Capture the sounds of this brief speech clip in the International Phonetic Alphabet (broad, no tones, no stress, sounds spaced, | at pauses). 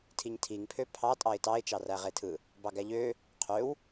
tʰ i ɲ tʰ i ŋ pʰ ø pʰ ɑ tʼ ɑ ɪ̯ t ɑ ɪ̯ t͡ʃ ɑ r æ ʁ e tʰ ɯ | b ɑ ɡ æ ʎ ø | qʰ ø w